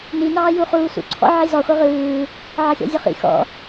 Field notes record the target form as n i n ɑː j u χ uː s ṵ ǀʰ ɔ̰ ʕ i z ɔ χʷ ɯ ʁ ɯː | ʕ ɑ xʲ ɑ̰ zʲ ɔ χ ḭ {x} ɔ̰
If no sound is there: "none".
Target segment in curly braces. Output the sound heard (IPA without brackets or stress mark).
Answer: x